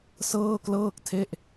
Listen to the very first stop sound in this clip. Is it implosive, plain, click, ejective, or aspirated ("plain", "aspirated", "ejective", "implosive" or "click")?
plain